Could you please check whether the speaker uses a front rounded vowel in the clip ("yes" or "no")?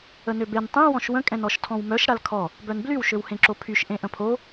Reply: yes